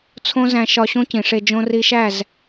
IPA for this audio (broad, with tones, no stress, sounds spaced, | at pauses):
t͡sʰ õ˦ z æ̃˧ ʃ ɒ˧ ɕ õ˦ c ĩ˨ ʂ e˧ d͡ʒ õ˧ r i˧ ʃ æ˦˨ z